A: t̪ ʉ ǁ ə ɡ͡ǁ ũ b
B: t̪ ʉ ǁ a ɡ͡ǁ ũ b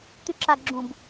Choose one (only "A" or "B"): B